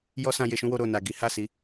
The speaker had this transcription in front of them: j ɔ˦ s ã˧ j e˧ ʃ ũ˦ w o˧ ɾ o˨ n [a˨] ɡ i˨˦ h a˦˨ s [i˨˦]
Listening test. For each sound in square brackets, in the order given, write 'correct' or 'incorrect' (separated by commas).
correct, correct